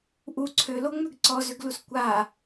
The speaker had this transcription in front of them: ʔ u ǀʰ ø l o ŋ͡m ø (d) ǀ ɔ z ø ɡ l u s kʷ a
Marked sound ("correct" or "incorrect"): incorrect